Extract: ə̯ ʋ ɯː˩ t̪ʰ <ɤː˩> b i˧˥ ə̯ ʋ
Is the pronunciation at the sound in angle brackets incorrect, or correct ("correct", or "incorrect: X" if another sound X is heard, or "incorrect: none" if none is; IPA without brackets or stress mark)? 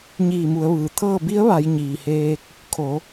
incorrect: ɤː˥˨